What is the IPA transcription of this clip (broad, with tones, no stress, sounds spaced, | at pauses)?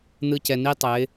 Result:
n̪ ɯ˧ c ɛ˨ n i˦ tˤ ɛ˨˦ ɪ̯